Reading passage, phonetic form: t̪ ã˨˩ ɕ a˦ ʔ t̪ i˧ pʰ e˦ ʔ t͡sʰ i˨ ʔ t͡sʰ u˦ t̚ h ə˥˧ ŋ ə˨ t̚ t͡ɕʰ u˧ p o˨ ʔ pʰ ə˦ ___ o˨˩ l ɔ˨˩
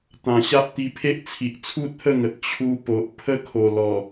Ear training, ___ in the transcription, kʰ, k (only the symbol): kʰ